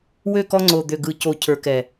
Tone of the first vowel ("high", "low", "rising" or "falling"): falling